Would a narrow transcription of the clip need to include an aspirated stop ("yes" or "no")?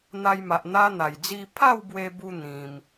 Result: yes